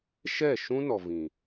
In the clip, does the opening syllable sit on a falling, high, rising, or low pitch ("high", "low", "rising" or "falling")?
falling